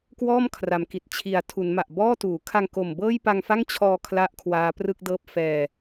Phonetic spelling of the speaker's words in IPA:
kwɔː˥˩mkʰra˩˦mki˨˩t̚ t͡ɕʰi˩˦a̯tʰu˩˦nma˨˩ʔ bɔː˥˩tuː˩˦ kʰa˧ŋ ko˨˩mbɤː˥˩jpa˧ŋfa˥˩ŋ t͡ɕʰɔː˧ kʰla˥˩ʔkʰwaː˦˥prɯ˥˩k̚dɤː˥˩p̚ fɛː˧

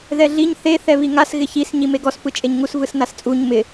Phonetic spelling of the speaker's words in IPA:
ðɛɮiɲ θe θɛβiŋas ɣɪçis ɲimeɡɔs pɯt͡ʃʼeɲŋus vɯsnast͡sʼuɲ mɪ

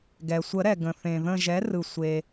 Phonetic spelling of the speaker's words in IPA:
ɡɛ˩sʷə˨˩˦ɾɛ˩ ɡə̃˩θẽ˩ ðə̃˧˩ʒɛ˩˥ rɯ˩sʷe˩

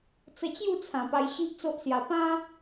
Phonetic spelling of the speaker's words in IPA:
t͡sə˧t͡ɕju˥˧t͡sʰã˨˩ pa˧jɕi˦ʔt͡so˦ʔsja˧ pã˦

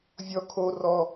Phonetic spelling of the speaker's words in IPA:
vʲɔ kʰo rɔ

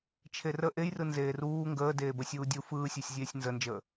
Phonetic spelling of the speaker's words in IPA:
t͡ʃʰerə ʔejrɯ nzeːruː ŋɡəː deːbəsʲuːdʲu fɯːsʲesʲzʲeːsʲ nzənd͡ʒəː

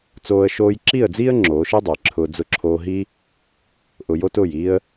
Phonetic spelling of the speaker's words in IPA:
t͡soː˦ə̯ ʃoː˧jǁi˦˨ə̯d͡ziː˦ə̯ ŋ͡ǁoː˨˦ʃi˦dˤə˨jǁʰʊː˧ d͡zʊ˧ǁʰoː˧ɦi˦ | ʔʊ˧ jo˦tʊː˦˨jiː˦ə̯

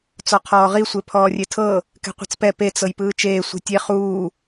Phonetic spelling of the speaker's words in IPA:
t͡sɔqʰɔːʁi sʷepʰɔːrʲetʰɤ | kɛ̤qʷe̤t͡spɛ pet͡s ɤjpɯːt͡ʃeː sʷɛ̤tʲe χuː

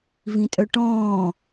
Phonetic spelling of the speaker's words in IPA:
vĩtʼœʈɔ̃ː

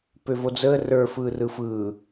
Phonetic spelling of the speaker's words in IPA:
pøvod͡zəː rə˞ fɯːrɯfɯː

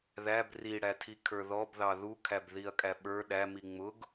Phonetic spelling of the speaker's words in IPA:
ðæb riɽætʰi kʰə˞ðɔbðɑ ðukʰæbðiɐ̯ kʼæɓə˞ ɗæmi ŋ͡mʊɡ

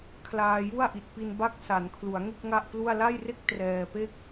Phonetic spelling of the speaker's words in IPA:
kʰlaː˧ju˥˩a̯ ʔi˨˩t̚pi˧n ba˥˩k̚ sa˩˦nkʰlu˩˦a̯ŋe˥˩k̚ ŋa˥˩ʔplu˥˩a̯ la˥˩jre˥˩k̚ trɛː˧pe˥˩k̚

